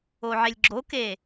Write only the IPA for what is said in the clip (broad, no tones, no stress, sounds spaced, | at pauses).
o ʕ e lʲ ɡ͡ǁ o k e